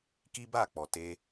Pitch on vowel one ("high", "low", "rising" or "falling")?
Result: high